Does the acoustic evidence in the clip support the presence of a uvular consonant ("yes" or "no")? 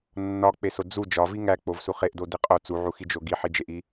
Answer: yes